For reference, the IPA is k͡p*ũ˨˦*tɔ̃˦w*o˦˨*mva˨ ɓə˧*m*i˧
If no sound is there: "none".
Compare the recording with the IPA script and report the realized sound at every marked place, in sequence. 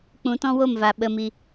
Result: ũ˨˦, o˦˨, m

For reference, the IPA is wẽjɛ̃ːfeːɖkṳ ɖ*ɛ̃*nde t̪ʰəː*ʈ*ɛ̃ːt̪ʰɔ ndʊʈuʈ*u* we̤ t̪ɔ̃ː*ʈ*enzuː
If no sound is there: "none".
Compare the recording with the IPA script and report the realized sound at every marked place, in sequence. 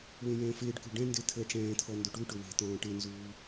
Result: ɛ̃, ʈ͡ʂ, ʊ, ʈ

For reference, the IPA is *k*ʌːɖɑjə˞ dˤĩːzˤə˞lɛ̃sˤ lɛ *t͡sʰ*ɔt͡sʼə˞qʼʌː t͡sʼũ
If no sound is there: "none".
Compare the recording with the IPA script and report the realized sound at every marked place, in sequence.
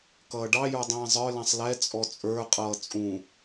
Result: k, t͡sʼ

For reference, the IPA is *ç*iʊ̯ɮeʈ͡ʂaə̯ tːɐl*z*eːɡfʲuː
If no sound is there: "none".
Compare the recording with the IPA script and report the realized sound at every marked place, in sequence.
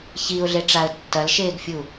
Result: ç, ʃ

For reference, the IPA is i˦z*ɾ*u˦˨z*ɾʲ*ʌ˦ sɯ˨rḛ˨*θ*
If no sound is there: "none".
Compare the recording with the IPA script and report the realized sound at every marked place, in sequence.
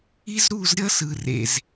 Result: ɾ, ɾʲ, z

